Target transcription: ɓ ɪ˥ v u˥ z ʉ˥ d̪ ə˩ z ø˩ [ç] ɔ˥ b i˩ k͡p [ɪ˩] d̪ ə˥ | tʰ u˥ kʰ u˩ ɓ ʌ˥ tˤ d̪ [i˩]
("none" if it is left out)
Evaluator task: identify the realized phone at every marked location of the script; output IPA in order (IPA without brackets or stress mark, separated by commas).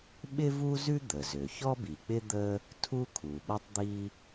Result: ç, ɪ˥, i˥